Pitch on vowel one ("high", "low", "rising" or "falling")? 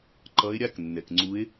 rising